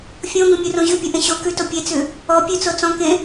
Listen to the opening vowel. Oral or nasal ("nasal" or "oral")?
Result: nasal